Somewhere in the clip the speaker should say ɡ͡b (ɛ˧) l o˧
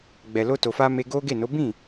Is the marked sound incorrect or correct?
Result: incorrect